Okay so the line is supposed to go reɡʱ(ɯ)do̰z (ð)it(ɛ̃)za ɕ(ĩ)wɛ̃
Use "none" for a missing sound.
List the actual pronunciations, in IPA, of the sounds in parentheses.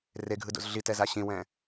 ɯ, ɮ, ɛ, ĩ

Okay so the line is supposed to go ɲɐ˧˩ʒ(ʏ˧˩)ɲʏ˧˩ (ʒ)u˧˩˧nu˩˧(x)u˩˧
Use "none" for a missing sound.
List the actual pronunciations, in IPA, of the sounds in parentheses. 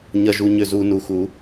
u˧˩, z, x

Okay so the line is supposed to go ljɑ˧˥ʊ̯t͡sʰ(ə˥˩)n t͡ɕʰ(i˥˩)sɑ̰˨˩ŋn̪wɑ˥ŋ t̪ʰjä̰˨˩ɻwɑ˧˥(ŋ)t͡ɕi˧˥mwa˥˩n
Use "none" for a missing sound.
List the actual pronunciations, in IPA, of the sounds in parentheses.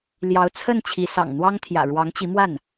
ə˥˩, i˧˥, ŋ

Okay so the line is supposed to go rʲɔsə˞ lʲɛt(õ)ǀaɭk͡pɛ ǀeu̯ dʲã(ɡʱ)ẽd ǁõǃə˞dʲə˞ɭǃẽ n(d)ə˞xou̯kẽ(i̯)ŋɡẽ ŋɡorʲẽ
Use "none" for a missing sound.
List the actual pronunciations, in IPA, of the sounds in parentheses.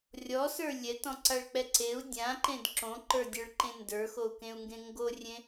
ɔ̃, ǃ, d, u̯

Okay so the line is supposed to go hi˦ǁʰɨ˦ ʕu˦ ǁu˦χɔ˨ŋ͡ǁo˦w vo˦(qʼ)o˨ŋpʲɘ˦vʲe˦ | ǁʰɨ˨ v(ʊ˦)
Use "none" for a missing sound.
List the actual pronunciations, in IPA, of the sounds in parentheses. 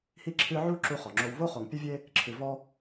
χ, ɔ˦

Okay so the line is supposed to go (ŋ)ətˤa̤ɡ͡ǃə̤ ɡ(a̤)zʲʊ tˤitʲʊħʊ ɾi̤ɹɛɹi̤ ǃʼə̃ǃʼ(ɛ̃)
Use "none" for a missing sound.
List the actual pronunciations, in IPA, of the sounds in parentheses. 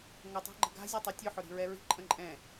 ŋ, a̤, ɛ̃

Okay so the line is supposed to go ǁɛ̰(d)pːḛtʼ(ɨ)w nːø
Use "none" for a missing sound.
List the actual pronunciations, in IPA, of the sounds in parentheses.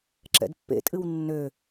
d, ɨ

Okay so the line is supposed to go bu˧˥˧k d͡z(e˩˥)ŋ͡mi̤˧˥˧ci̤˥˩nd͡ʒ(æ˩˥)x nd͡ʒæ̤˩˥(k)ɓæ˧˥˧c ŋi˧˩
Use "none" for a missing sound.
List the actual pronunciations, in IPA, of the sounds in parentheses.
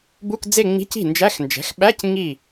e˥˧, æ˧˥˧, x

